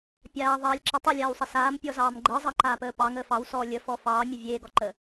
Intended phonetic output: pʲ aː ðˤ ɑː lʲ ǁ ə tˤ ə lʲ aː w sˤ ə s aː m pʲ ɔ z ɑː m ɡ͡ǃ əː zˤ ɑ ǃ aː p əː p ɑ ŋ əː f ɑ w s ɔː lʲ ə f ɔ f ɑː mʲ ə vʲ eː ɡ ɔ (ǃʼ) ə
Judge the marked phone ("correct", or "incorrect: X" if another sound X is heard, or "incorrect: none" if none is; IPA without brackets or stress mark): incorrect: ǃ